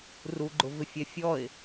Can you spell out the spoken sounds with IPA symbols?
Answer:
r u ɡ͡ǃ ʊ v ɪ fʲ ɛ fʲ ɔ ɪ̯

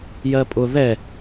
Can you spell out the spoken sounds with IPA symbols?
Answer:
j ɜ pʼ ʊ ð ɛ

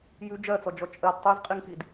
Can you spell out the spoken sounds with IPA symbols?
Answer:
j ʉ d͡ʒ ɜ t͡s ɔ d͡ʒ ɔ t͡ʃʼ ɜ d tˤ ə˞ z qʼ i ŋ x i d

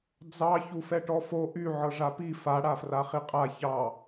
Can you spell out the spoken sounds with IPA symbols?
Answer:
d͡z ɑ ç u f ɛ ʈ ɔ f o ʔ y ʕ ɤ ʐ a p i f a ɽ a f r a χ i qʼ a ç ɑ

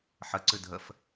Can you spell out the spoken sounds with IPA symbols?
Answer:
ħ ə ǀ ɨ dʱ ə f

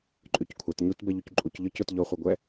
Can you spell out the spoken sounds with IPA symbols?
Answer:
ǃʼ y c kʷʰ ɛ t ɲ u t b ɛ ʎ u c ǃʼ u c ʎ ɒ c ʊ t ʎ ɔ χʷ e ɡʷ ɛ

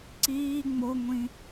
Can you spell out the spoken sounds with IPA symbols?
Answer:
ǀ iː ŋ͡m o ŋʷ ĩ

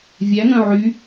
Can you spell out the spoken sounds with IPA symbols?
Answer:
vʲ æ ŋ œ̃ ʕ y

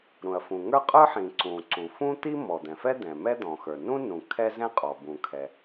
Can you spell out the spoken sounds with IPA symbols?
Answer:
ɾ ũ˩ ɐ̯ f ũ˩ ŋ ə˞˥ qʼ ə˞˥ ħ ĩ˩ ǀ ũ˩ ǀ u˩ f ũ˥ t̪ i˥ m ɔ˩ d̪ ɛ̃˩ f ɛ˥ d̪ ɛ̃˩ m ɛ˥ d̪ ɔ̃˩ x ə˞˩ n ũ˥ n ũ˩ kʰ ɛ˥ z ɛ̃˥ qʼ ɔ˩ b ũ˩ kʰ ɛ˩

